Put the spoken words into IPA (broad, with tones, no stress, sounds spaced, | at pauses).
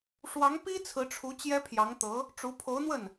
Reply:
ʂ w ɑ˧˥ ŋ p i˥ t͡sʰ ɹ̩˧˥ ʈ͡ʂʰ u˧˥ t͡ɕ j ɛ˥ pʰ j ɑ˧˥ ŋ t̪ ɤ˧˥ | ʈ͡ʂ u˧˥ pʰ o˧˥ ʊ̯ n̪ w ə˥˩ n